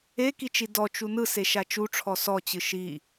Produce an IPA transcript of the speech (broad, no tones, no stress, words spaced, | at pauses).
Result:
ekit͡ʃi dɔt͡ʃu nɯseʃa t͡ʃuʈ͡ʂʰɔ sɔt͡ɕɯ ʃi